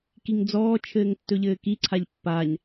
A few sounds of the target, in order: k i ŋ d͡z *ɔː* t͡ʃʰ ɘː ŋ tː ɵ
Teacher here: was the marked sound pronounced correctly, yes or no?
yes